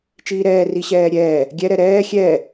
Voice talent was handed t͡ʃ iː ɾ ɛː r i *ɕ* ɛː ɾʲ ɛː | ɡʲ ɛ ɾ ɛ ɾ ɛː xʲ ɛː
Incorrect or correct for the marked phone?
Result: correct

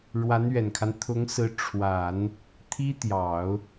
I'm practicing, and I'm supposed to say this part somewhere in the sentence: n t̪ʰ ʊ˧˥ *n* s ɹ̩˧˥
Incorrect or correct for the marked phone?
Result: incorrect: ŋ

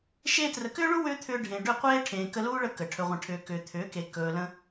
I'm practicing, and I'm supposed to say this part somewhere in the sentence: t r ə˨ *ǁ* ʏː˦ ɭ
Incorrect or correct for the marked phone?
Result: incorrect: k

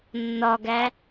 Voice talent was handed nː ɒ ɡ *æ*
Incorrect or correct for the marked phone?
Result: correct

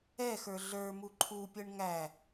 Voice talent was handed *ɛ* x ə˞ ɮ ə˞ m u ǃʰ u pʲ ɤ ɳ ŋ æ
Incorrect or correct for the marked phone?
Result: correct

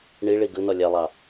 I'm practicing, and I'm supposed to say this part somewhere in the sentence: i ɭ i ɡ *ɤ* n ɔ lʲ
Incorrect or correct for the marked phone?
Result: incorrect: ɯ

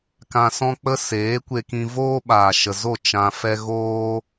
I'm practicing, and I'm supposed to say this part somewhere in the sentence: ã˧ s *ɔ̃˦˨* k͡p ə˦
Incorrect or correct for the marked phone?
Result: incorrect: ɔ̃˦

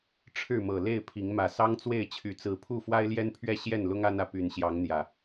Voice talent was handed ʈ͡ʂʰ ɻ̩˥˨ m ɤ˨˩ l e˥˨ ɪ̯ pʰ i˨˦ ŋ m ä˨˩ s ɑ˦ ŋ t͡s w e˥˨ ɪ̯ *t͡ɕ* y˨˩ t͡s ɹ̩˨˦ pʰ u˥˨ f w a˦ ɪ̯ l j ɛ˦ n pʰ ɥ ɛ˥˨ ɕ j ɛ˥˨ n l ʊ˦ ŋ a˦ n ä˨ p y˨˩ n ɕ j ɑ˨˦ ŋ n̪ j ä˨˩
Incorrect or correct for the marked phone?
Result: incorrect: t͡ɕʰ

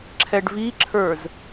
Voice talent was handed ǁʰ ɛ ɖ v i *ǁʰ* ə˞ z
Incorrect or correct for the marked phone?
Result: correct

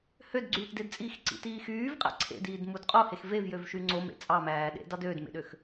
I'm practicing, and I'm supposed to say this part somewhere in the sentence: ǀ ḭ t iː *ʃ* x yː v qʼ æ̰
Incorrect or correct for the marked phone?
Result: incorrect: none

